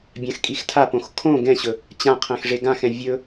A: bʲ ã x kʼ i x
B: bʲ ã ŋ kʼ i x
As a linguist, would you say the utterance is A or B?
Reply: A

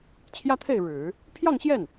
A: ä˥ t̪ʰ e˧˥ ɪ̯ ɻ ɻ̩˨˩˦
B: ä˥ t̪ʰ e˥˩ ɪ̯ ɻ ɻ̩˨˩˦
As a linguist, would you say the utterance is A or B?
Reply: B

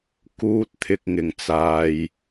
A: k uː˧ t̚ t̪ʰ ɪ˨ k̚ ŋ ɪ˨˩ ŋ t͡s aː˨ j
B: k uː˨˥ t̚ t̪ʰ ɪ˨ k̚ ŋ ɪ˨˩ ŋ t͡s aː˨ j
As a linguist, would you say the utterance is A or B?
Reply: A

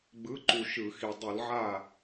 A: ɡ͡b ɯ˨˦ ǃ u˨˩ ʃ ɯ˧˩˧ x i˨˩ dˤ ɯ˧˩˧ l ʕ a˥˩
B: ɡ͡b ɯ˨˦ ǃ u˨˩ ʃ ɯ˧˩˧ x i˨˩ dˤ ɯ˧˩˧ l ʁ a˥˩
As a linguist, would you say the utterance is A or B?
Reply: A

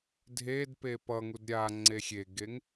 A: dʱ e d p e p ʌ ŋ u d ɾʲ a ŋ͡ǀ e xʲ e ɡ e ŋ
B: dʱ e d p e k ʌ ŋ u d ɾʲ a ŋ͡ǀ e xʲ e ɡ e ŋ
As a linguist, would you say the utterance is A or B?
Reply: A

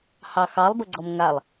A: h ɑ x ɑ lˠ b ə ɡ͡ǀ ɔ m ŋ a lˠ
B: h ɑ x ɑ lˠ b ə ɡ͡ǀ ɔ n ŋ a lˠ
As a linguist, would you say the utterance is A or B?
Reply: A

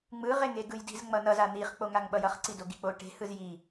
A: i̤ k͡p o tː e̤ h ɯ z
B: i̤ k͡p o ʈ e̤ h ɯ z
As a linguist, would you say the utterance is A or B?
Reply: B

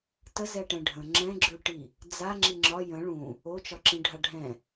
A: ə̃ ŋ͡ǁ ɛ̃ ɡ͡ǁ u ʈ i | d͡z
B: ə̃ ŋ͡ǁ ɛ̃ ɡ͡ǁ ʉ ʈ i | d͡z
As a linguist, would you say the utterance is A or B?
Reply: B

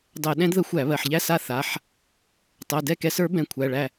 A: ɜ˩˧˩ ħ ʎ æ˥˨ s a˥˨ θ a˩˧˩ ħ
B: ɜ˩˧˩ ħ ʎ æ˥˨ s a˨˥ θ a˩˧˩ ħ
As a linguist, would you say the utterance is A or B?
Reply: A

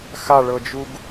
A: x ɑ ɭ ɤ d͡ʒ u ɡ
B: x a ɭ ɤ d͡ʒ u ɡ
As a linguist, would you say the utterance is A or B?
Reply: B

